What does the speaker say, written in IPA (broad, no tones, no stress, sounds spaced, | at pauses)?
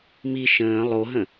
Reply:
m i ʃ ə̃ː lˠ o ɦ ə̃